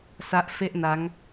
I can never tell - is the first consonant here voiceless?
yes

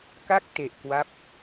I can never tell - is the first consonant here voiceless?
yes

